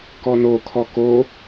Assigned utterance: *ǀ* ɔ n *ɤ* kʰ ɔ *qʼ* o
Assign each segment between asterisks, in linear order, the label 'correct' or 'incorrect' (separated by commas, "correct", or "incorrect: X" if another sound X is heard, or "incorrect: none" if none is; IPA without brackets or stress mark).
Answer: incorrect: k, incorrect: o, incorrect: k